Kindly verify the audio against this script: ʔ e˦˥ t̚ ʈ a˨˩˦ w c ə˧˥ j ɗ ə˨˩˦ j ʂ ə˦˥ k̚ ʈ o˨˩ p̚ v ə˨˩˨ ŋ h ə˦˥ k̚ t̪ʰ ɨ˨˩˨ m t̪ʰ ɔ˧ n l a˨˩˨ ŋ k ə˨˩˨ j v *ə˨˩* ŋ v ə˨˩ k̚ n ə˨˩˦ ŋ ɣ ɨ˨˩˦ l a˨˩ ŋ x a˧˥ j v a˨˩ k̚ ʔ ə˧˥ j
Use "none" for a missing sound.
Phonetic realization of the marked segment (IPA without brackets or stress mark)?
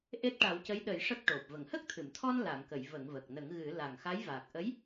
ə˨˩˨